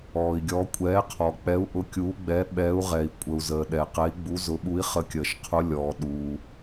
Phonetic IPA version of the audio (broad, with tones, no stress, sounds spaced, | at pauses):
ɔː˩ i̯ ɡʲ ɔ˨˦ kʷʼ ɛː˨˦ qʰ ɔ˩ k͡p ɛ˨˦ u̯ ʔ ʊ˨˦ kʲ uː˨˦ ɡ͡b ɛ˨˦ ɓ ɛː˨˦ u̯ ʁ ɛ˩ i̯ kʷʼ ə˩ u̯ z əː˩ ɗ ɛ˩ q ɛ˨˦ i̯ ɡ͡b u˨˦ z ʊ˨˦ ɓ u˨˦ i̯ χ ə˨˦ kʲ əː˩ ʃ qʰ ʊ˨˦ lʲ ɔː˩ ɗ uː˩